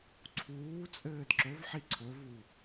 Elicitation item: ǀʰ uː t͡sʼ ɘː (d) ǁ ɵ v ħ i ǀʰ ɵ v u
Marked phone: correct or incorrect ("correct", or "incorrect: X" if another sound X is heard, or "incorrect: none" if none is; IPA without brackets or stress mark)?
correct